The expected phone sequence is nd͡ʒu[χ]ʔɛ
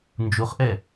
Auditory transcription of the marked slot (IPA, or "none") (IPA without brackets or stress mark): χ